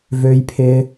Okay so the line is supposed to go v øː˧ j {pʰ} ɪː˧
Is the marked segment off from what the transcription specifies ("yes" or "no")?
no